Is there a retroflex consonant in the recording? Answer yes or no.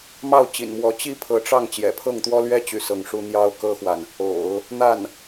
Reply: yes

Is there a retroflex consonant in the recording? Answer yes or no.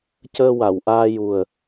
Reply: no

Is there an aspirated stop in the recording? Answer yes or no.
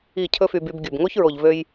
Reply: yes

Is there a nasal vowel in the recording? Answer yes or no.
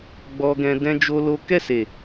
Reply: yes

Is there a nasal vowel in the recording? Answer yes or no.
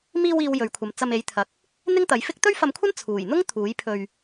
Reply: no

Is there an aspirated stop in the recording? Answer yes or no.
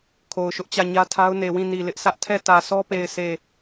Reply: yes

